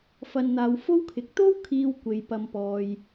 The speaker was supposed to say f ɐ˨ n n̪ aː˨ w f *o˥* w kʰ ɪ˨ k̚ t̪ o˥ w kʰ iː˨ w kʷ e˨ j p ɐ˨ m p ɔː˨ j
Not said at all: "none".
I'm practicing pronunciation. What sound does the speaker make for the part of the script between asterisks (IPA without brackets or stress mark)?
o˥